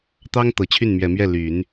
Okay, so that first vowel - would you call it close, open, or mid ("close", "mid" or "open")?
open